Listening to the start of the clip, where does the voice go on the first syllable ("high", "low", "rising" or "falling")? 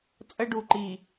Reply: high